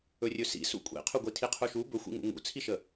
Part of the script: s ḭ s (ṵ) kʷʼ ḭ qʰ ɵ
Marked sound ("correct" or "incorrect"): correct